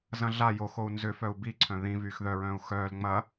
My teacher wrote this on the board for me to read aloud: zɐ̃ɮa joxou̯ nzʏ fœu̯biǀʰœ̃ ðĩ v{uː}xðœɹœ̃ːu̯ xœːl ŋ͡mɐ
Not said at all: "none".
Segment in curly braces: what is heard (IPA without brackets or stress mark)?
yː